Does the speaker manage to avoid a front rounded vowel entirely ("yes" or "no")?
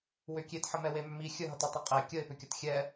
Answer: no